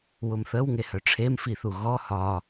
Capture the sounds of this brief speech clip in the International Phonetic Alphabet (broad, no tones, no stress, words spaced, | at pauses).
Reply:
wʊmθəw ŋehœʈ͡ʂʰem fiθuɣɔ hɒ